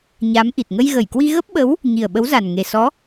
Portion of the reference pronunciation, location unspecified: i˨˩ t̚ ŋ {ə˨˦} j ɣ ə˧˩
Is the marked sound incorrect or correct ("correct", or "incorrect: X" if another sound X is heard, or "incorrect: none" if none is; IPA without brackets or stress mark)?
incorrect: ə˧